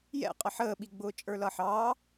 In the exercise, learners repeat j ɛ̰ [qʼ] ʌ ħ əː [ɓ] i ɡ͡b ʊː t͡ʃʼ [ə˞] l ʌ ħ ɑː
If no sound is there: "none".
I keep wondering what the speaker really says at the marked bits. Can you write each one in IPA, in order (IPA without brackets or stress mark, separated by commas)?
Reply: qʼ, ɓ, ə˞